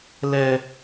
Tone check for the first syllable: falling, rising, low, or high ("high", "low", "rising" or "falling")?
low